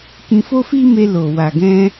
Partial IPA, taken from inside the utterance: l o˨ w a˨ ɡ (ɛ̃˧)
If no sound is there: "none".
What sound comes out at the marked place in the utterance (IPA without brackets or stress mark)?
ɛ̃˧